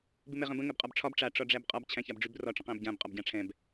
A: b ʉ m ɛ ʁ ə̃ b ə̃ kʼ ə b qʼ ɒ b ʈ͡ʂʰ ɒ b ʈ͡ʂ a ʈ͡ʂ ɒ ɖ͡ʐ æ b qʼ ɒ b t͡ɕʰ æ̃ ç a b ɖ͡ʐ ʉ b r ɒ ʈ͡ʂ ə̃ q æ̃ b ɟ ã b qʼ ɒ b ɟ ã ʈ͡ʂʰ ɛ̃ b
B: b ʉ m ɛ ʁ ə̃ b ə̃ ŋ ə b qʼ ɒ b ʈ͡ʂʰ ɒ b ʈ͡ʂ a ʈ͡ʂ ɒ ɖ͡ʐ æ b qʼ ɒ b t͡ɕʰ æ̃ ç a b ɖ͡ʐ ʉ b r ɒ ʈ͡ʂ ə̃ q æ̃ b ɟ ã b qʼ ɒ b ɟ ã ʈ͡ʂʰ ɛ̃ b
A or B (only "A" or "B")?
B